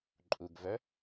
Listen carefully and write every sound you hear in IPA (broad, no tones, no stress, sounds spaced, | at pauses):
ǃʼ u ɡ v œ